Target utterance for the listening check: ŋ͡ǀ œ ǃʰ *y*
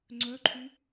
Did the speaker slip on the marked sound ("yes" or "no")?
no